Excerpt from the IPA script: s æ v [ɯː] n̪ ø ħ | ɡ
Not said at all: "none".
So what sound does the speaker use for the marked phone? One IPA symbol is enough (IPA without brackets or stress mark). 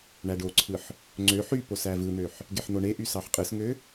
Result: ɯ